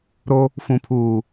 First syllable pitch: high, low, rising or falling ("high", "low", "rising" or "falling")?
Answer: high